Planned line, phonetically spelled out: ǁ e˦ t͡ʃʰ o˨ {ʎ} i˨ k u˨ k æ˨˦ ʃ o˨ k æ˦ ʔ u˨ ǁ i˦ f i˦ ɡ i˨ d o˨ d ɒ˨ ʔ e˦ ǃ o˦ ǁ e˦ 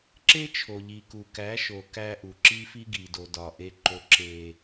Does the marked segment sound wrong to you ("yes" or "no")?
no